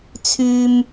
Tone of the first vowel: high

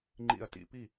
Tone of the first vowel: low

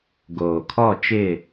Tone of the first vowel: low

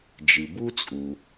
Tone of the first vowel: low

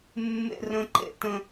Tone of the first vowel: high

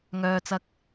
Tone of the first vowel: low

